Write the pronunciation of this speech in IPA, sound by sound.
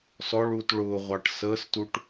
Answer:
s ɔ ɭ uː t ɭ ʊː ʁʷ ɑ ʈ s əː s t u ʈ

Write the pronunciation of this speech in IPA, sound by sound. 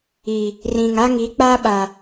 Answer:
iː˨ | r ĩ˨ ŋ a˦ ŋ i˨˦ k͡p a˦ ɓ a˨

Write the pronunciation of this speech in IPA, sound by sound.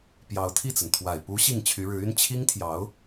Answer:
p j ɑ˧˥ ʊ̯ t̪ʰ i˥˩ t͡s ə˩ n t̪ʰ w a˨˩ ɪ̯ p u˧˥ ɕ i˥˩ ŋ t͡ɕʰ y˧˥ ɻ ɻ̩˧˥ y˥ n t͡ɕʰ i˥ ŋ t̪ʰ j ɑ˧˥ ʊ̯

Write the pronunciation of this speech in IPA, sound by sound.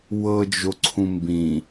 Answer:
w ɤ d͡ʒ o ǀʰ ũ m b ĩ

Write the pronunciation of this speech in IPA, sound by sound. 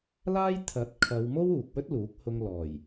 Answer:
l aː˥ j t̪ʰ ɐ˨˥ t̚ kʰ ɐ˨˧ w m o˥ w uː˨ k̚ w ɵ˥ t̚ l uː˨˥ k̚ h ʊ˧ ŋ l ɔː˨˩ j

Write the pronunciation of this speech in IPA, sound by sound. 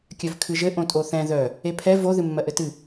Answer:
kʲ œ v kʰ ɨ ʒ ɘ ʔ õ tʼ o θ ɛ̃ ð œ | e pʰ ɛ v o ð ɨ mː ɜ ʔ ɘ t ɨ

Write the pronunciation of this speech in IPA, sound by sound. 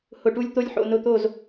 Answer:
h ʊ˨ ʈ u˧ lʲ t̪ o˧ lʲ ħ o̰˨ n ʊ˧ t̪ o˦˨ z

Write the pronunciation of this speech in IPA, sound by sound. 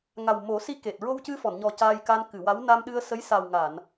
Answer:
ŋ a˨˩ w m o˨˩˦ s i˧˥ k e˨˩ t̚ ɹ o˧ w c ɨ˧ f ɔ˨˩˨ n ɲ ɔ˨˩ c aː˧ j k a˧ n k ɨ˨˩˨ w a˧˥ w n a˧ m ɗ ɨ˧ ə̯ s ə˧˥ j s a˨˩ w ŋ a˨˩˨ n

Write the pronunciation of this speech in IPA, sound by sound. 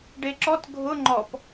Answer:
ɖ e ǁ ɔ t ɡʱ ʊ ŋ͡ǃ ɔ p

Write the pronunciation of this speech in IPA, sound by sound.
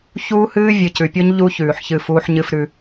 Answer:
ç uː˦ h ɨː˦ vʲ ɨ˨ c ʉ˨ pʲ o˦ ɲ ʎ u˦ ç ʉː˨ ħ ç ɨ˦˨ f uː˦ ħ ɲ ɨ˦ f ɾ ʉ˦

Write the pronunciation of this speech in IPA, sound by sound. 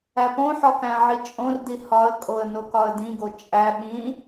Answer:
æ p õ ħ ɒ k æ̃ ʕ i t͡ʃʼ õ r d i h ɒ ə̯ kʼ o ə̯ n o k ɒ ə̯ d ĩ ɡ o t͡ʃʼ æ ɓ ĩ

